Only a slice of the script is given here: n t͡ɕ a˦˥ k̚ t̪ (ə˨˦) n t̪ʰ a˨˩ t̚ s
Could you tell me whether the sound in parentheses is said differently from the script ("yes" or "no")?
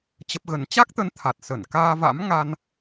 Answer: no